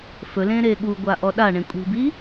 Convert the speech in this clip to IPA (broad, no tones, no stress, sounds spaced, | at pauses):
f ɵ l ẽ ɾ e ɠ u ɡʷ a ʔ ɔ ɗ a ɳ ẽ kʷʼ i̤ b i